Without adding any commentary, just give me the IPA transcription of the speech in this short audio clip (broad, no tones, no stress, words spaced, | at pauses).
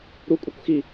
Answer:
ɾu kʷʼɛkʷxi